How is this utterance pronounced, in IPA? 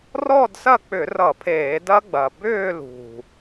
r ɔ˥˧ d s ɐ˥˩ k͡p ʏ˧˩˧ r ʌ˧˩˧ pʰ eː˧˩˧ d ɐ˦˥ ɡ͡b ɐ˨˩ b ʏː˥˧ l ṳ˨˩

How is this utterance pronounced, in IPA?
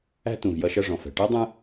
æ̤˥ t ũ˩ v j ʌ˦ ʃ ʌ˦ ʐ ɔ̃˩ f ɛ̤˩ ʈ ɜ˥ dˤ ə̃˦

